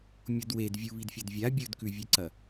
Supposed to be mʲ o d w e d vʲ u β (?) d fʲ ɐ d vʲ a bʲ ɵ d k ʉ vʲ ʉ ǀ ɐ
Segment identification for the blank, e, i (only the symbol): i